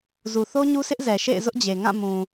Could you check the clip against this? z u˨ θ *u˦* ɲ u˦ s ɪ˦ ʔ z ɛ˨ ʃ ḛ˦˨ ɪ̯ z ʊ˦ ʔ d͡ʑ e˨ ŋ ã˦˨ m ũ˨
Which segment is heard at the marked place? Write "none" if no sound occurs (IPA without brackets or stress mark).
o˦